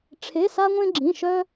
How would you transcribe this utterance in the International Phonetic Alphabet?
ʈ͡ʂʰe˧˥˧sa˥ŋʷẽ˥ ɡ͡ǁĩ˧˥˧ ʃœ˥

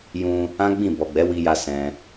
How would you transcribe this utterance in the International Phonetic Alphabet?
jũ˧ | ã˦ɡ͡bĩ˦˨ bɔ˨ɡ͡bɛ˨˦ wi˧ja˧ sɛ̃˧

